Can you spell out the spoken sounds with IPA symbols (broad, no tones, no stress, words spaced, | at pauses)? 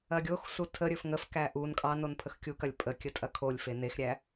ɐɡʲoxsu tʰəɾʲɵf ŋəfkæ ʔun kʼɑnon pʰəxkʲukɐlʲ pʼə kʲətʼɐkʰolʲfe nexɾʲæ